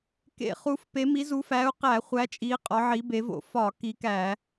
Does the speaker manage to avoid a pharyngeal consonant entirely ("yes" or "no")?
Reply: no